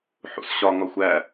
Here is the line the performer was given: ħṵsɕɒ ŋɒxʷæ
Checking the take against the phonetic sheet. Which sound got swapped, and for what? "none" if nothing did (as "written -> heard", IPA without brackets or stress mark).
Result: none